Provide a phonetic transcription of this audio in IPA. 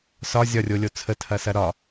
s ɒ zʲ ɒ rʲ o lʲ o t͡sʰ ə tʰ ɐ s ɐ ɾ ɒ

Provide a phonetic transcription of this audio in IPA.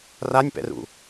r a nʲ p ɛ̰ r ṵ

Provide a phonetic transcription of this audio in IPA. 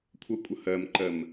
kʷʰ ʌ kʷʼ ʌ h ɜ m ǃ ɜ m

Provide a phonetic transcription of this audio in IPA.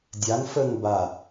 dʲ a ŋ f ə ŋ b a

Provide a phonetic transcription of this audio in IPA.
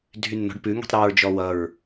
dʱ y nː ɔ̤ ɖ p ʉ ŋ i̤ tˤ ɾ y ɹ d͡ʒ ɔ w ʌ ɹ

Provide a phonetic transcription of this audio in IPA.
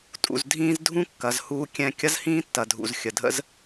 tʼ ṵ˩ z dʱ ĩː˧ z dʱ ũ˥ kː ɐ˩ z h uː˧ kʲ ɛ̃˧ kʲ ɐ˥ z h ĩː˥ tː ɐ˩ dʱ ṵ˩ z xʲ ə˩ dʱ ə̰˥ z

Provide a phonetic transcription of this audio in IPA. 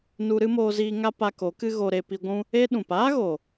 n u˧ ɾ ɨ˦ m oː˧ z iː˧ ŋ a˦ p a˧ k o˨˦ k ɨ˦ ɣ o˧ ɾ e˧ p i˧ ɡʷ ũ˦ | e˦ ɗ ũ˨ p aː˦ ɣ o˨

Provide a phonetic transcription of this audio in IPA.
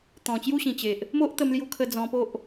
t̪ ɔ̃˨˩ t͡ɕ j u˥˧ ɕ ĩ˨˩ t͡ɕ e˨ ʔ | m o˦ ʔ t̪ ə˧ m l j u˧ kʰ ə˧ d͡z ɔ̃˧ p o˦ ʔ

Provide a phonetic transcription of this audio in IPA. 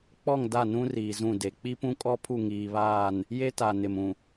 k͡p ɔ˦˨ ŋ d a˦˨ n ũ˦ r iː˨ z ũ˦˨ d e˨ k͡p i˦ p ũ˦ kʼ ɔ˦ pʰ u˦˨ ŋ iː˨ β aː˦˨ n | j e˦ t a˨ n ɪ˨ m ũ˨

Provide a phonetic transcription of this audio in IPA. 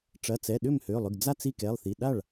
ʈ͡ʂ ɐ˩˧˩ t͡s ɛ˩˧˩ ɗ ʏ˥˩ m h ø˩˧˩ lˠ ʏ˩˧˩ ɡ d͡z a˥˩ t͡s i˥˩ k ɛ˩˧˩ lˠ θ i˩˧˩ ɗ a˥˩ ɭ

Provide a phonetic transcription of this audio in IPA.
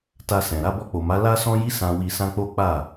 t a˧ s ɛ̃˨ ɾ a˧ b ɔ˧ k͡p o˨ m a˨˦ l a˦ s ɔ̃˦ j i˦ s ã˧ w i˧ s ã˦ k͡p o˦ k͡p a˦˨

